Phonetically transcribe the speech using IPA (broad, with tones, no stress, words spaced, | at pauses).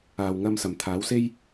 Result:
aː˨wŋɐ˧msɐ˨˩m t̪ʰaː˨˥wse˥j